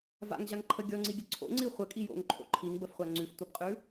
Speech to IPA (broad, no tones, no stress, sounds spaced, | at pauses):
v a̰ ŋ ʑ a ŋ ǃʰ ə ɡʲ ɔ ŋ͡ǀ i ɡʲ ə ǀʰ o̰ ŋ͡ǀ i χʷ ə kʼ i j o̰ ŋ ǃʰ o̰ ǃʰ i ŋ b ə f χʷ a ŋ͡ǀ ʉ f tʷ a b qʼ ʉ